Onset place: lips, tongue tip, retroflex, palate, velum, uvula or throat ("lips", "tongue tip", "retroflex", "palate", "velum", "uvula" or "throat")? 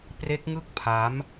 lips